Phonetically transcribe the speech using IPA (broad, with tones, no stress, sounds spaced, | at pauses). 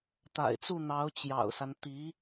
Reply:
t̪ a̰˨˩ ɪ̯ t͡s u˥˩ n̪ ɑ˧˥ ʊ̯ t͡ɕ j ɑ̰˨˩ ʊ̯ s a˦ n t̪ i˧˥